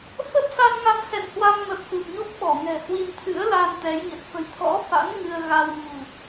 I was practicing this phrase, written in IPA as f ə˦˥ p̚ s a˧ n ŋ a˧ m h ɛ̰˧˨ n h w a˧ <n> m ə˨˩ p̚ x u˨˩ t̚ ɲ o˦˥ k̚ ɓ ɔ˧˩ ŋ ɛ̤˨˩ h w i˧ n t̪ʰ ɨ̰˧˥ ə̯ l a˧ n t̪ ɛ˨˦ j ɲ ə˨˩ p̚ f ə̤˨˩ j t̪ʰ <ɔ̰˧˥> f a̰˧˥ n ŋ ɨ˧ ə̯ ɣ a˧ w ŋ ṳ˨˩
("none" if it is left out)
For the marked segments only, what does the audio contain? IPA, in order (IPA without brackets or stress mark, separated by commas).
ŋ, ɔ̰˧˥